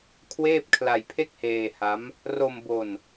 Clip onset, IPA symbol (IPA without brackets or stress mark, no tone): kʰ